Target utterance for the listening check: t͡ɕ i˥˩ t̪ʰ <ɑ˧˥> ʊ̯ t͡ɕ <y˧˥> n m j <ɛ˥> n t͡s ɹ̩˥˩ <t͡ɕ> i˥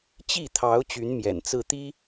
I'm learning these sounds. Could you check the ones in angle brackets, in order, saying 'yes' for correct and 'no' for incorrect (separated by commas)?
yes, yes, no, no